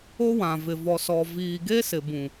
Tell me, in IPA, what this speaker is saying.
o˦ w ã˨ v ɪ˨ v ɔ˨ s ɔ˨ v iː˨ ɡ e˦ s ɪ˨ b ũ˨

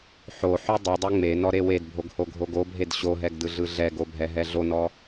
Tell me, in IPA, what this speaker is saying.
ħ o ħ o dˤ ɯ dˤ ɛ ŋ͡m e n ɔ ɾ e w e d bʱ o ɡ h o ɡʱ o ɡ o bʱ e d ɕ o ɦ ɛ ɡ d ɯ ɮ ɯ ɮ ɛ ɡ o bʱ ɛ ɦ ɛ ɮ o n ɔ

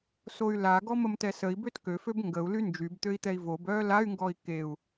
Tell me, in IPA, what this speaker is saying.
s o y̯ l a ɡ ɔ m ə m t ɛ s ə i̯ b ø t k ø f ø b ŋ ɡ ə u̯ l y n d͡ʒ y b t̪ ø i̯ t̪ ɛ i̯ v o b œː l a y̯ ŋ ɡ ɔ i̯ k e u̯

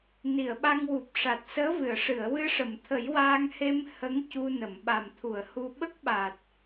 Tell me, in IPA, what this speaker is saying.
n i˨˩˨ ə̯ ɓ a˧ ŋ w u˨˩ p̚ ʂ a˨˩ t̚ s əː˧˥ v ɨ˨˩˨ ə̯ ʂ ɨ˨˩˨ ə̯ w ɨ˧ ʂ ə˨˩˨ m t̪ʰ ə˨˩˦ j w aː˧ ŋ h e˧ m h ə˧˥ ŋ c u˧ n ə˨˩˨ m ɓ a˨˩ m t̪ʰ u˨˩˨ ə̯ h u˧ ɓ ə˦˥ k̚ ɓ aː˨˩ t̚

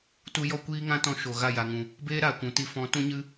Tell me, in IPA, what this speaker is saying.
t u˧ j ɔ˧ kʷ iː˦ ŋ ã˦ t ɔ̃˧ ʃ o˨ ɣ a˦˨ j a˨ ŋ ũ˨ | b eː˦ ɾ aː˨ kʷ ũ˨ t i˧ f ɔ̃˨˦ t ũ˦ ɲ ɨ˦

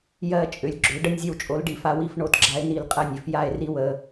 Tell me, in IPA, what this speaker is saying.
j ɜ˦˨ t͡ʃʼ ʏ˨˩˦ lʲ ɡ͡ǁ ʏ˨˩˦ ɖ ə˦˨ nʲ zʲ ə˦˨ w t͡ʃʼ o˨˦ l ɖ i˨˩˦ f a˨˦ w i˨˩˦ f ɳ o˩˧˩ t ɡ͡ǁ a˨˦ e̯ n i˨˩˦ l qʼ ɜ˦˨ nʲ ʏ˨˩˦ f j a˦˨ e̯ r i˦ w ə˩˧˩

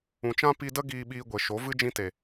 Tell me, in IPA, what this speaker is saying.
ũ˨ t͡ʃ ã˦ p i˧ d ə˦ ɡ iː˧ ɓ iː˧ ɡʷ e˨ ʃ o˨˦ v ɨ˧ d͡ʒ ĩ˧ t e˨

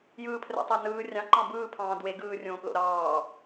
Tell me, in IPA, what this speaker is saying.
j ɯː pʰ r æ̰ tˤ æ n ɯː rʲ ɑ̃ ǃ ɑ̃ b ɯː pʰ ɑ̃ː d w e ɡ ɯː rʲ õː p l o̰ ɾ ɑː

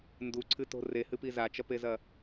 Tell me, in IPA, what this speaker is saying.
n d u ǀʰ ɨ t o̤ r e h ɨ p i z a t͡ʃ ɐ p e z ɐ

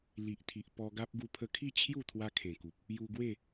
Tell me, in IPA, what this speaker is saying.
l i˨ ʔ t̪ʰ i˨ ʔ p ɔ˧ ɡ a˦ p̚ ɡ u˧ pʰ ə˧ kʰ i˥˧ t͡ɕʰ j u˥˧ t̪ʰ w a˦ kʰ ẽ˨˩ k u˨ p̚ | j u˧ ɡ w e˥˧

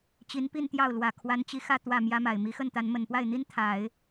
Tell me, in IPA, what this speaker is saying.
t͡ɕ i˧˥ n p i˥˧ n t̪ j ɑ˥˩ ʊ̯ l w ä˨˩ kʰ w a˧˥ n t͡ɕ i˧˥ x ä˥˧ t̪ w ä˥˩ m j ä˥ m a˨˩ ɪ̯ m i˧˥ x ə˥˩ n t̪ a˧˥ n m ə˨˩ n p w a˥˩ ɪ̯ n̪ i˥ n t̪ʰ a˨˩˦ ɪ̯

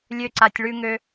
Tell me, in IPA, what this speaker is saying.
lʲ ø˦ ǀ a˧ tʲ ɭ ʉ˧ ŋ ø˧

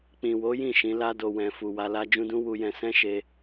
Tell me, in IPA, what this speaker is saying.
k͡p ĩ˨ w o˨˦ j ĩ˦˨ ʃ ĩ˨˦ l a˧ d o˨ w ɛ̃˨ f u˨ w a˧ l a˦ d͡ʒ ũ˦ d ũ˦ w u˧ j ɛ̃˧ s ɛ̃˦ ʃ e˧

